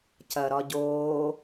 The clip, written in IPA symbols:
c ɐ ɾ ɒ ɟ oː

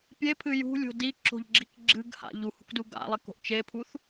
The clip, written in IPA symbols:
pʲ e pʰ ɨ j ṳ lʲ o̤ d i ǁ o̤ ʎ ɡ͡ǁ i k ɡ͡ǁ ɨ ɡ h a̰ ʎ u h ṳ k d u ɡ a̰ lˠ e k o̤ ʔ t͡ʃ e pʰ u θ

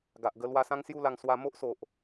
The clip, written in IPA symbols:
ɡ a˨ ʔ ɡ ə˧ l w a˧ s ã˦ ŋ s j u˥˧ l a˧ ŋ s w a˧ m o˦ ʔ s o˨ ʔ

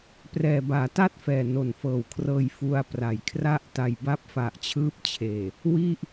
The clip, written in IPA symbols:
p r ɛː˨˩ b aː˩˦ t a˥˩ t̚ f ɛː˨˩ n o˨˩ n f ɤː˨˩ w kʰ r ɤː˧ j f u˧ a̯ p r a˨˩ j kʰ r a˥˩ ʔ t a˨˩ j b a˦˥ p̚ f a˨˩ ʔ t͡ɕʰ ɯː˦˥ p̚ t͡ɕʰ eː˨˩ | w i˥˩ ʔ

